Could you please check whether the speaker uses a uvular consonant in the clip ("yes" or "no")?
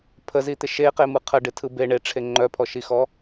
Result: yes